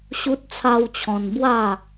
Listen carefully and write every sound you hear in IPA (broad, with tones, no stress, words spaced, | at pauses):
ɕu˦t̚t͡sʰa˦wt͡ɕʰɔ̃˧n bwa˥˧